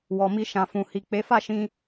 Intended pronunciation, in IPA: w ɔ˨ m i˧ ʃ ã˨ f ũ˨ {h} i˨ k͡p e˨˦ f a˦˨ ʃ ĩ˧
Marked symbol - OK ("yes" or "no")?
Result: yes